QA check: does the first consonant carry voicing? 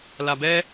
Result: yes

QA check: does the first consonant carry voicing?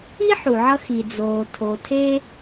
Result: no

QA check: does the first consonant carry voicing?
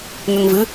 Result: yes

